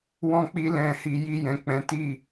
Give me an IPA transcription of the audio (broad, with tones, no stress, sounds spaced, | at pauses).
w ɔ̃˧ k͡p i˧ l ɛ̃˨ h i˨ j i˧ j ɛ̃˨ k͡p ɛ̃˨˦ t i˦˨